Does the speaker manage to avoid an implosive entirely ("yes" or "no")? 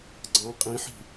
yes